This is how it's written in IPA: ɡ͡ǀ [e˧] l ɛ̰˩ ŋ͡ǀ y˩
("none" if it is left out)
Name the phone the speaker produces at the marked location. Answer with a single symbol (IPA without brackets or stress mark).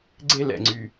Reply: e˧